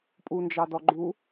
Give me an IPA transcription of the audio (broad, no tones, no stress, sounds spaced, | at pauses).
pʼ u n d͡ʒ ɑ d ɔ ɡ͡ǃ u